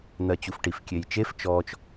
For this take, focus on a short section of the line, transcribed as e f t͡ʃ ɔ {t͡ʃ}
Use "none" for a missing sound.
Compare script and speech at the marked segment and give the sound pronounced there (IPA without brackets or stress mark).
t͡ʃ